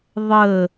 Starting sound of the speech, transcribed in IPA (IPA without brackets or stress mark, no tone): ðˤ